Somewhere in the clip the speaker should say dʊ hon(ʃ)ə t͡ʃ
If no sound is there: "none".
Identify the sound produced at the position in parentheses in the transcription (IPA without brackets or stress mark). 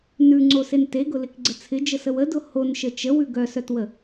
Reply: ʃ